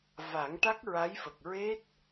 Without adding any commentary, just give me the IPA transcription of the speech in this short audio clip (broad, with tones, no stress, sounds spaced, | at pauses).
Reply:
v a˨˩˦ ŋ ʈ a˦˥ k̚ ɹ a˧˥ j f ə˨˩ k̚ ɹ e˦˥ t̚